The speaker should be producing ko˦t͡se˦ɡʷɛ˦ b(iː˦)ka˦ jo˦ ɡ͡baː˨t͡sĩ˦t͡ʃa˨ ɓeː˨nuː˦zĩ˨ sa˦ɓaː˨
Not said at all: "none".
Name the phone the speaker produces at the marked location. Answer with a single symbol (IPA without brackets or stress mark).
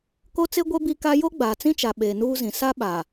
i˦